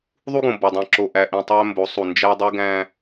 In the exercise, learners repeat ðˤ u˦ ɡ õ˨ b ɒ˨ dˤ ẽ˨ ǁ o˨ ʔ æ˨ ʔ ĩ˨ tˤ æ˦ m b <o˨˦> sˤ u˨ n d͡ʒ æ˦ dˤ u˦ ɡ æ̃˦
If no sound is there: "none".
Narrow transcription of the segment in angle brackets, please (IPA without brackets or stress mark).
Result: o˨˦